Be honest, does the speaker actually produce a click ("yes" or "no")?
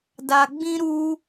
no